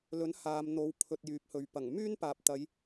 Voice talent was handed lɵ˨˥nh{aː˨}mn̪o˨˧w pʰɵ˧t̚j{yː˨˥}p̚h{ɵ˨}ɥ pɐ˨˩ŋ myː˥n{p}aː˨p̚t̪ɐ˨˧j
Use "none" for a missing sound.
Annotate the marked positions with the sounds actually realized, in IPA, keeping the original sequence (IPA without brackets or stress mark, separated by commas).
aː˨, yː˨˥, ɵ˨, p